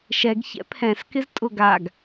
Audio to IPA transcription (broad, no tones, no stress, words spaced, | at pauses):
ʃɛɡ çɛ̰pʰɛ̃s kɪztʼʊɡaɡ